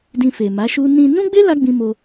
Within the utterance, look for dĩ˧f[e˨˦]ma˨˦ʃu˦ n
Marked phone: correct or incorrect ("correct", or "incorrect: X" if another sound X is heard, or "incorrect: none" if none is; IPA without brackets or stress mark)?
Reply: incorrect: e˨